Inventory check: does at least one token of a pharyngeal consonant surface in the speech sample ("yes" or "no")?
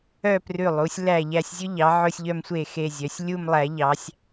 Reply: yes